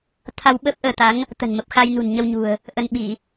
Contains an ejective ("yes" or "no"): no